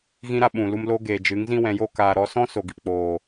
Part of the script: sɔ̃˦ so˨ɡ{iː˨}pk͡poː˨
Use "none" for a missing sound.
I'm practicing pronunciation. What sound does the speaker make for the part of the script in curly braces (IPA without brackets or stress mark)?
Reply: i˨